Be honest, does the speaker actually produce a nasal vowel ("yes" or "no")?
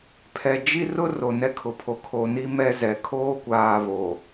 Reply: no